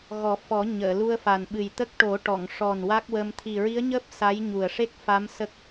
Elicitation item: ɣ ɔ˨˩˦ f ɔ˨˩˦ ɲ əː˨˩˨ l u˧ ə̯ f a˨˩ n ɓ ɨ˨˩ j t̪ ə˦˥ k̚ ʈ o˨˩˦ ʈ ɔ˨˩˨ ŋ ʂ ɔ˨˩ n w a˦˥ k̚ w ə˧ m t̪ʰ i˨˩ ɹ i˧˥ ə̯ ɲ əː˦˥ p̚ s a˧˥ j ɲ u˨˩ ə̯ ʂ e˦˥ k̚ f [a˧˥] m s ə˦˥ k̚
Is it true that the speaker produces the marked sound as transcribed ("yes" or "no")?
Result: yes